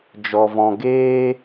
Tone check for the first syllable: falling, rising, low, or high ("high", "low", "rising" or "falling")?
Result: low